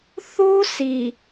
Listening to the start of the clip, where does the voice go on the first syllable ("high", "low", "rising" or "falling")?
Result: high